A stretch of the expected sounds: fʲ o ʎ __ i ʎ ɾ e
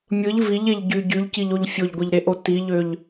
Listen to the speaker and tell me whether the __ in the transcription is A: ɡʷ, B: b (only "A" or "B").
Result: A